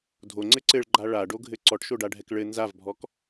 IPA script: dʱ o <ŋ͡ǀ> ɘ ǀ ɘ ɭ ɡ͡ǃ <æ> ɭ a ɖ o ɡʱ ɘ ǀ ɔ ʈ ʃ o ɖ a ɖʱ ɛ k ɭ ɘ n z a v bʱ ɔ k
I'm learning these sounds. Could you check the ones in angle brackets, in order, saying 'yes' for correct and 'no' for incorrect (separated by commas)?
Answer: yes, no